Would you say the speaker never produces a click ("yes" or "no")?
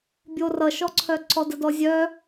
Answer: no